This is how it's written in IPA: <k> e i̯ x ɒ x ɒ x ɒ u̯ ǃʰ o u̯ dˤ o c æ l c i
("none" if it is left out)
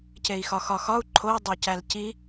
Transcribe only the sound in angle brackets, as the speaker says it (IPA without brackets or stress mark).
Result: c